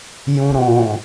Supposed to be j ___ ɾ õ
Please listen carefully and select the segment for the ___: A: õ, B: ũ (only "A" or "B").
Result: B